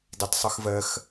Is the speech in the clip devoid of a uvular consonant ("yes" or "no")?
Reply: yes